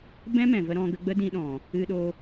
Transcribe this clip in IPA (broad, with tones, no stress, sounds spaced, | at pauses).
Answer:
b ɛ̃˦ m ɛ̃˨ v ə˧ ɾ ɔ̃˧ ɡ ə˧ ɡ͡b ə˦ d ĩ˧ ɗ ɔ̃˨ | ɨ˧ ɗ o˧